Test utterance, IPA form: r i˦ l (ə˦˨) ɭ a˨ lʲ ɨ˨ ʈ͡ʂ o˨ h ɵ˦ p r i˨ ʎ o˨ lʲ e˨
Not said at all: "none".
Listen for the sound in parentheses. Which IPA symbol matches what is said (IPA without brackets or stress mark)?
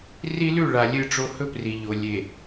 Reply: ʉ˦˨